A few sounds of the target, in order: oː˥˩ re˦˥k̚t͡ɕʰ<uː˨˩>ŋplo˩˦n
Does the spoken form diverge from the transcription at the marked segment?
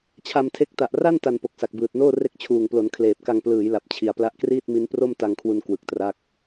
no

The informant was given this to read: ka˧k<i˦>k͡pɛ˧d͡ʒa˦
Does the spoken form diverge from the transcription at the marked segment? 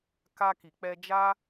yes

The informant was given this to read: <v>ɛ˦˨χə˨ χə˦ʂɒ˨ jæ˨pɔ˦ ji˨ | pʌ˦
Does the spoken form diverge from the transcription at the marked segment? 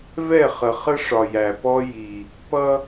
no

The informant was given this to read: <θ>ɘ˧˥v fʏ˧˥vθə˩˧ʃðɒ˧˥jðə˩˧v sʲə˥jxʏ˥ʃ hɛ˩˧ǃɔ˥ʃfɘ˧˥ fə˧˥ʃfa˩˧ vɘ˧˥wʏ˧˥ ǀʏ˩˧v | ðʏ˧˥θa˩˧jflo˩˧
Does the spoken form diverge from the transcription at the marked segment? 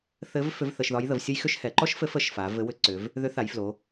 no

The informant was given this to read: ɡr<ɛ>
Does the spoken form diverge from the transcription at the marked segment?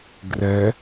no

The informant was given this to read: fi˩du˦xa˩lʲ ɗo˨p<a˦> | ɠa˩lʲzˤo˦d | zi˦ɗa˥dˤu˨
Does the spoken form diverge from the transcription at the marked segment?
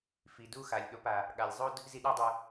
yes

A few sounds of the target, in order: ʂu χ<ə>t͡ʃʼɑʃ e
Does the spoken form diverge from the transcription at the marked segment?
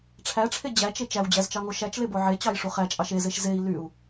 yes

